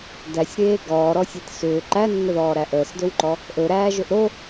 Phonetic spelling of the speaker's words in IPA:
d æ sʲ ɾ eː ɡ ɔː ɾ ɔ sʲ e t s ʏː ǃ æ nː ə ð ɔː ɾ æ ʔ əː s d ɵ w ǃ ɔ | ʔ ɵ ɾ æː ʒ ɵ ʔ ɾ o

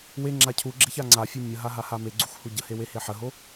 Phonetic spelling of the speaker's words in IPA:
w e ŋ͡ǁ a cʰ u ɡ͡ǁ e ç a ŋ͡ǀ a fʲ o mʲ ə ɦ a ɦ a h a m e ɡ͡ǀ u x h u ɟ ə h e w e h e ħ ə ɦ o

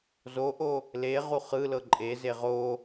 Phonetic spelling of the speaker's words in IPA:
z o ʔ o | l e ʁ u χ ɯ l ɤ ǃʼ e z e ʁ o

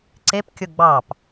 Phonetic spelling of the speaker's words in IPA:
ǀ e p kʲ o ɡ͡b ɑ p

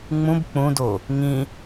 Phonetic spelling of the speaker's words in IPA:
ŋ͡m ũ b k͡p ũ d o | ŋ ĩ

